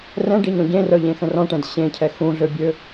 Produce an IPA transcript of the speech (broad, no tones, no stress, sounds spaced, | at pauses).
r ɛ̃ ɖ i ɲ ɔ̃ ɟ ẽ r œ ʎ ẽ x ə̃ r ɔ̃ ʈ ɛ̃ d ɕ ẽ cʰ ɛ x ũ ɮ ø bʲ ø